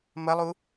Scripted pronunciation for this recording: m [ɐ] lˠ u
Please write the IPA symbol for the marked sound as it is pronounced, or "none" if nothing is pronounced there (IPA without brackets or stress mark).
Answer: ɐ